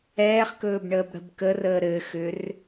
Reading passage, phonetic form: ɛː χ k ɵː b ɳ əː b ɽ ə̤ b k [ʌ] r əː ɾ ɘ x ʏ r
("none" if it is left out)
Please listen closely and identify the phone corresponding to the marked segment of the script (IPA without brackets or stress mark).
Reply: ə